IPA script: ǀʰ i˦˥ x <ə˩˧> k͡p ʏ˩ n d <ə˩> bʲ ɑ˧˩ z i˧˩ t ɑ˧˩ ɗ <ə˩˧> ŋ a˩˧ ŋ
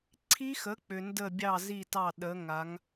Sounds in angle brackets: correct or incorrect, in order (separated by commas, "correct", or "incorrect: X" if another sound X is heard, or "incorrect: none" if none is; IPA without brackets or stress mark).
incorrect: ə˩˥, incorrect: ə˧˩, correct